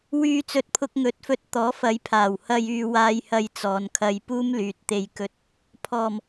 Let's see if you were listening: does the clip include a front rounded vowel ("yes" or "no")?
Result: yes